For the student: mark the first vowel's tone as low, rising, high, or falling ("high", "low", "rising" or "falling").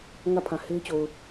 falling